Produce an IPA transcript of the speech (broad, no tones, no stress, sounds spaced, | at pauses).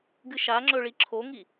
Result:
ɡ ɨ ʃ a ŋ͡ǁ ɵ ɭ i ǁʰ o ŋ i